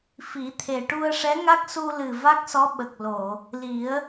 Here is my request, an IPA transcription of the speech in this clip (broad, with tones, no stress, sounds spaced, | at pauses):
f i˨˩˦ t̪ʰ e˨˩ ʈ u˧ ə̯ ʂ ɛ˧˥ ŋ a˦˥ k̚ s u˧ l ɨ˨˩ v a˦˥ k̚ s ɔ˧˥ ɓ ə˨˩ k̚ l o˨˩˨ | l i˨˩˦ ə̯